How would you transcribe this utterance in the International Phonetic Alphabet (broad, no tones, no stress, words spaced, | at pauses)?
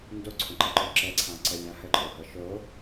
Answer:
ndoǀʰõǃɛǃo ǁɛǀʰãǀəlʲã həǃʼohɤ ʃo